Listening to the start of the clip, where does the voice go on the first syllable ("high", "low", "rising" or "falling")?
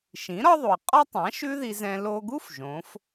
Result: rising